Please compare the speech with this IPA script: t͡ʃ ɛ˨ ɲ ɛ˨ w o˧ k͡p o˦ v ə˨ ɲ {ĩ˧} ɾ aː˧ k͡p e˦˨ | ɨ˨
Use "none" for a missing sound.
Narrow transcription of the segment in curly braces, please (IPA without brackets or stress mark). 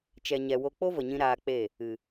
ĩ˧